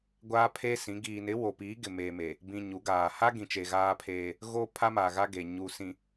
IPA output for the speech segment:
ɡʷ aː˦ pʰ eː˦ s ĩ˨˦ ɡ iː˨ n ɪ˨˦ w o˨ p iː˨˦ ɡ ɪ˨ m eː˨ m e˨ | b ĩ˨ ɲ u˨˦ ɡ aː˨ h a˦ ɡ ĩ˨ t͡ʃ e˨ ɣ aː˦ pʰ eː˦ | ɣ o˦ pʰ a˦ m a˨ ɣ a˦ ɡ e˨ ɲ u˨ s ĩ˨

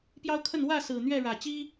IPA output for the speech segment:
p j ɑ˦ ʊ̯ kʰ ə˥˨ n w ä˥˨ s ɹ̩˨˩ n̪ ɥ ɛ˥˨ ɻ ä˨˩ t͡ɕ i˦

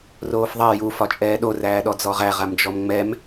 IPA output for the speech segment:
r oː f ðˤ ɛ j u f ɒ t͡ʃʼ ɛː ɗ o r æː ɗ ɔ d͡z ɔ ʁ æ ʁ a m d͡ʒ ɔ m ŋ͡m ɛ m

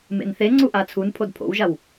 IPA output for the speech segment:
m ḛ n θ e ŋ͡ǀ u ʔ a t͡sʰ u n pʰ o d pʰ o̰ w ʒ a w

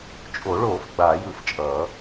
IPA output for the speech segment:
t͡ʃʼ o˨˩˦ ɭ oː˨˩˦ f ɡ͡b aː˨˩˦ j ɯ˨˩˦ f t͡ʃʼ ʌː˨˩˦

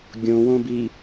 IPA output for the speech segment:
ɡʲ õ w õ b i

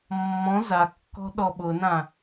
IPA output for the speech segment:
mː ɔ̃ z a kː ɔ̤ ɗ ɔ ɓ ʊ n ã

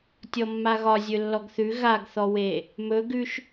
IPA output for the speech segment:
tʲ ɔ mː a ɣ ɒ zʲ ɵ lː ɔ ɡ θ ʉ ɣ a ɡ θ ɔ w e | m ɵ ɡ ʉ ʃ

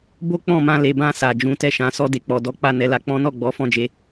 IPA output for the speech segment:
b o˦ k͡p ɔ̃˦˨ m ã˧ l e˨ b ã˧ s a˨ d͡ʒ ũ˨˦ t ɛ˦˨ ʃ ã˨˦ s ɔ˧ d e˨ k͡p ɔ˨ d ɔ˨˦ k͡p a˦˨ n ɛ˨˦ l a˧ k͡p ɔ̃˦ n ɔ˦˨ ɡ͡b ɔ˨˦ f ɔ̃˦˨ d͡ʒ e˨˦

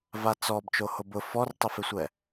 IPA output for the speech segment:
v a t͡s ɔ b t͡ʃ o h o b ʊ f ɔ r tˤ ʊ f ɪ sʷ ɛ

